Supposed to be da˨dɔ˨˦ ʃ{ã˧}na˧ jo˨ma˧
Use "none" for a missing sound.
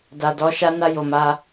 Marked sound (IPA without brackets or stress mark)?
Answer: a˧